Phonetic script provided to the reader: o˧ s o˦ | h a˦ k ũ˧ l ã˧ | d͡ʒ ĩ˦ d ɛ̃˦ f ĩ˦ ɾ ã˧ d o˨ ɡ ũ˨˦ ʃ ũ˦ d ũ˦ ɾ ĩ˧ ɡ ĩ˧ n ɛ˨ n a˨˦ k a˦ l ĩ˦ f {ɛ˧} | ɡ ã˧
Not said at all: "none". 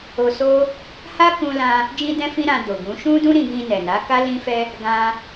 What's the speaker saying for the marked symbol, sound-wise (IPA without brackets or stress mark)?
ɛ˦